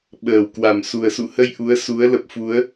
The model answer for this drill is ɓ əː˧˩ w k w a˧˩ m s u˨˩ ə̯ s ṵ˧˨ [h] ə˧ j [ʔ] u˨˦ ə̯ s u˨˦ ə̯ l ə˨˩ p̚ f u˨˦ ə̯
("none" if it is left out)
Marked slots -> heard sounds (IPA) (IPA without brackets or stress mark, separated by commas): h, ʔ